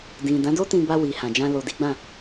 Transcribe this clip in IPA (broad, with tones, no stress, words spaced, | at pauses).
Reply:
dĩ˨ dã˨˦do˦tĩ˧ ba˧wi˨ hã˨d͡ʒã˧ lo˨di˨˦ɡ͡bã˦˨